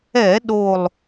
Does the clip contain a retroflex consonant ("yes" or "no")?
no